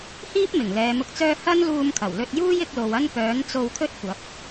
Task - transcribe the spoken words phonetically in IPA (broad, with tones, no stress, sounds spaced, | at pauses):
h iː˥ p̚ m ɪ˨˩ ŋ l ɛː˨˧ m ʊ˧ k̚ t͡s œː˥ h ɐ˥ n l uː˧ m kʰ ɐ˨˩ w l ɵ˧ t̚ j uː˥ j ɪ˨˥ k̚ l o˨ w ɐ˥ n p œː˨˥ n t͡s o˧ w kʰ ɵ˥ t̚ kʷ ɐ˨˥ p̚